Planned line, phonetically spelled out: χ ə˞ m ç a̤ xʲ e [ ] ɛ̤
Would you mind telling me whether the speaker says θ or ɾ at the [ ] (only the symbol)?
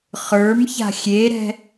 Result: ɾ